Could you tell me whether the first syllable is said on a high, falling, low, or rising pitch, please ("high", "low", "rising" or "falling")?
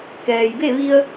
low